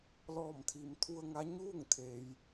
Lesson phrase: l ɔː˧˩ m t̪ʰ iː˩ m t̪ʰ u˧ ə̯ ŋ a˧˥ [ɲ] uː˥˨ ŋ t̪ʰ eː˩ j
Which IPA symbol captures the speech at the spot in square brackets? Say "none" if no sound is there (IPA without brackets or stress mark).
ɲ